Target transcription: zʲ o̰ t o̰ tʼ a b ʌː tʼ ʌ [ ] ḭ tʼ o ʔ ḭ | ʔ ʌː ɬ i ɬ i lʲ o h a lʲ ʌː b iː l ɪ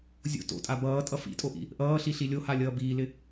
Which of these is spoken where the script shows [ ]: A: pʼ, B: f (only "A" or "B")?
B